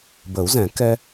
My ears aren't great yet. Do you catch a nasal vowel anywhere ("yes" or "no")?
yes